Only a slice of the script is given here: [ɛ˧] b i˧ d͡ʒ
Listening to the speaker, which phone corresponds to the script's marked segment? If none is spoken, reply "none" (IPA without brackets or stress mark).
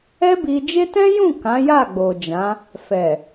ɛ˦